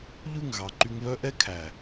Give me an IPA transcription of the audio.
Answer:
ʎ ʉ˦˨ ŋ ɣ ɑ˨ ǃ y˧ ŋ β œ˦ ʔ ɛ˦ kʰ æ˨

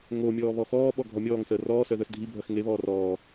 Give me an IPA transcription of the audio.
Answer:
ŋ o mʲ ɔː β ɔ x ɔː ɓ ɔ ɡʱ ɔ mʲ ɔː ŋ s əː r ɔː s œ ð œ s dʱ i bʱ œ x ŋ e β ɔː r ɔː

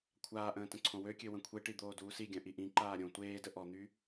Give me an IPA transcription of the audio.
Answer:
kʷʰ aː ʔ ə̃ː t ə̃ ǀʰ õ w ø kʲ ø w ə̃ kʷʰ e ʈ i d̪ oː d uː s i ɡʲ œ̃ ʔ i ʔ ĩ ǃ aː ɾʲ õ tʷ eː d ə ʔ ɔ n̪ y

